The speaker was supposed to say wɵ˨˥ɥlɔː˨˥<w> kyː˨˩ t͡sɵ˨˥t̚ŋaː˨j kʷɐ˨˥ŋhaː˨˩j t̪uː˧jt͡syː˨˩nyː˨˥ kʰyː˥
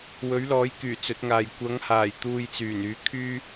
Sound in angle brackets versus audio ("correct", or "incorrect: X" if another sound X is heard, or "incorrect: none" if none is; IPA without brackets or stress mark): incorrect: j